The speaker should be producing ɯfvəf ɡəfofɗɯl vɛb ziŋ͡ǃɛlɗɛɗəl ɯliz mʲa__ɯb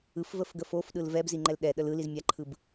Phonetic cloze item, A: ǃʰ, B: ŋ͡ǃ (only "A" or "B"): A